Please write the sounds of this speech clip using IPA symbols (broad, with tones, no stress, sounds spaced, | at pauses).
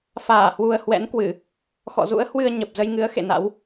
f aː˧˩ h w u˨˩ ə̯ h w ɛ̰˧˥ n k w ɨ˧˩˨ | x ɔ̰˧˨ z ṵ˧˥ ə̯ h w ɨ˧ ə̯ ɲ ə˨˩ p̚ z ə˧ j ŋ ɨ˨˦ ə̯ x ḛ˧˨ n a̰˧˥ w